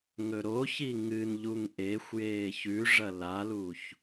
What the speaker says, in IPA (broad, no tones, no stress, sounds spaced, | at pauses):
ŋ ɵ ɾ o ç i ŋ ɨ n ʎ u ŋ ʔ e xʷ j eː ç ʉ ʐ ɐ l a l u ç